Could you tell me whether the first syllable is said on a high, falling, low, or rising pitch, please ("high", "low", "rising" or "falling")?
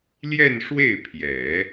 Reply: falling